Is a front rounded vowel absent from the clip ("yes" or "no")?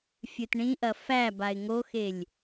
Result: yes